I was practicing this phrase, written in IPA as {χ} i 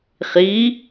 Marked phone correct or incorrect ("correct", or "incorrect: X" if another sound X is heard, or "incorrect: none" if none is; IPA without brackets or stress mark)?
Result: correct